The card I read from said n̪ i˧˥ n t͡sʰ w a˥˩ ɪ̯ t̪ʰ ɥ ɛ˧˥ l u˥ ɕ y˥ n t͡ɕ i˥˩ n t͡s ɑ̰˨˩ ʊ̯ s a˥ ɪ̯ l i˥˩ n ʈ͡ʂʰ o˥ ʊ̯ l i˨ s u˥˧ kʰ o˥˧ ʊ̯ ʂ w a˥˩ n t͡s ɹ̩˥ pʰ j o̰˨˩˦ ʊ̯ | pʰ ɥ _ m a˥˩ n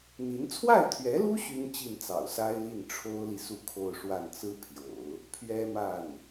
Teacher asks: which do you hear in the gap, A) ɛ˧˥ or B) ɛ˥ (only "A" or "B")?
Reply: B